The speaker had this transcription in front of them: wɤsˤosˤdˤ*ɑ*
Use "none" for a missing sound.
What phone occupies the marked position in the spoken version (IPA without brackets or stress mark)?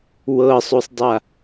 a